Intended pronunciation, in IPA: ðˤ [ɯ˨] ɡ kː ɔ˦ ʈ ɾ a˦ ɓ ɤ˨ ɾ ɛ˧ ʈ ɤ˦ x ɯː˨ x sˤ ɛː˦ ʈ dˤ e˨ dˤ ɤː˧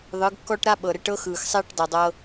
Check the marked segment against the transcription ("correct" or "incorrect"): incorrect